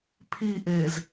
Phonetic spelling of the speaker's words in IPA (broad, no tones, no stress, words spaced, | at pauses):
pʰiʔez